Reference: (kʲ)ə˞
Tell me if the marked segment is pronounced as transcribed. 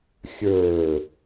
no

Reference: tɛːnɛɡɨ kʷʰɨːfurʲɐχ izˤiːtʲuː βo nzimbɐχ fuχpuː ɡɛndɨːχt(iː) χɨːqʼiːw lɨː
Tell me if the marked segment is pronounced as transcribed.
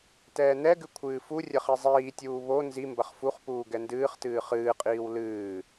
no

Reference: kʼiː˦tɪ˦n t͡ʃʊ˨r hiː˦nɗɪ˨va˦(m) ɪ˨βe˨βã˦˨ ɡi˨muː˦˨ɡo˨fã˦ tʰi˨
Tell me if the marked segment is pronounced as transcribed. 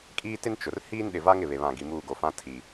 no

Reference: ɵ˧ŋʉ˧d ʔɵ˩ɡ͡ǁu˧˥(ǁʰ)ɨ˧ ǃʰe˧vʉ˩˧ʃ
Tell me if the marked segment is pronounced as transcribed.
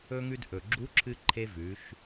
yes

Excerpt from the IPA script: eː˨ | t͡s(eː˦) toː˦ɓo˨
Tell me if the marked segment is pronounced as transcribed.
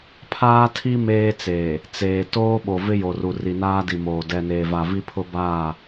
no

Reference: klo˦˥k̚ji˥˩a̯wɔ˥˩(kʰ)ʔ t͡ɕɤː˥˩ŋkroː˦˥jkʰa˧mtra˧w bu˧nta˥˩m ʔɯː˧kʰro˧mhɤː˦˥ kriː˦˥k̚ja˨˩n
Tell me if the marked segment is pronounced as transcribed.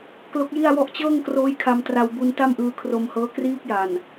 no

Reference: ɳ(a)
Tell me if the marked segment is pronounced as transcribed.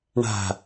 no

